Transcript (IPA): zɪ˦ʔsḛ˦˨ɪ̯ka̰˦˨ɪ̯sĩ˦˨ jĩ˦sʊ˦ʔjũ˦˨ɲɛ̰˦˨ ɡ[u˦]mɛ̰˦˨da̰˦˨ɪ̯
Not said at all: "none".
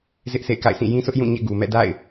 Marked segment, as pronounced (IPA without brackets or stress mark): u˨